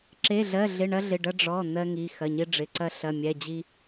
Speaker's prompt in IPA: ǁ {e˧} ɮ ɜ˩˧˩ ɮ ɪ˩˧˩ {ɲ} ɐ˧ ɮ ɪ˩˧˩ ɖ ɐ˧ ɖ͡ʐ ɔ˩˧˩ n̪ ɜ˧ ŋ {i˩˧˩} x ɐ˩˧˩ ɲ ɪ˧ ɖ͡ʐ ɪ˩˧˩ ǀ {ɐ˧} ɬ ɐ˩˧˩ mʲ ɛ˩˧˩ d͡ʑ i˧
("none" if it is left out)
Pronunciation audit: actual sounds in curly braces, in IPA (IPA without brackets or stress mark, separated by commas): e˩˧˩, ɳ, i˩˧˩, ɐ˧